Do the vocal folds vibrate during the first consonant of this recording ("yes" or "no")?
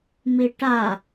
yes